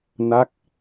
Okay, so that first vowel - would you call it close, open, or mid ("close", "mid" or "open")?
open